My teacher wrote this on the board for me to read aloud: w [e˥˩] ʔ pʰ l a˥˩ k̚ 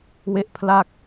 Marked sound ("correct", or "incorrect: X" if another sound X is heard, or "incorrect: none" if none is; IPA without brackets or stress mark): correct